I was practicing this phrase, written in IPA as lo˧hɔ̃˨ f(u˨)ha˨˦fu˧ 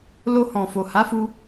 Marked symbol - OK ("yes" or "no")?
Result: no